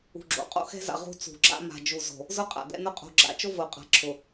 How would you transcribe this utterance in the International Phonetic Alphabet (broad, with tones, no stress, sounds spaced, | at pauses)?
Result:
ṳ˨ ɡ͡ǁ o̰˨ qʼ o̰˦ x ɛ̤˦ z a̰˨ ʁ ṳ˦ t͡s ṳ˨ ɡ͡ǁ a̰˦ m a̤˨ d͡ʒ u˨ z o̤˨ | z ʊ˦ qʼ a̰˨ d ɛ̰˦ n ʊ˦ qʼ o̤˨ ɡ͡ǁ a̰˨ t͡ʃ o˦ v o˨ qʼ a̤˨ ǁʰ ʊ˨